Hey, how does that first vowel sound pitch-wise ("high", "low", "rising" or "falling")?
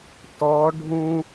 rising